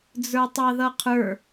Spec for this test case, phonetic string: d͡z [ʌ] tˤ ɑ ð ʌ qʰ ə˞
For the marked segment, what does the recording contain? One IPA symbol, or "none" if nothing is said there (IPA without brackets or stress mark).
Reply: ə˞